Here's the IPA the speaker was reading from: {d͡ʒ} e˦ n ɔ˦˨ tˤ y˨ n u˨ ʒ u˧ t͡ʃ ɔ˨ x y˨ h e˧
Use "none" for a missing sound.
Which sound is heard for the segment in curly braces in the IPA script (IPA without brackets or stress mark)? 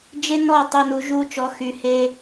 d͡ʒ